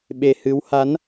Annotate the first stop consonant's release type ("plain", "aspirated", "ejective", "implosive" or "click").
implosive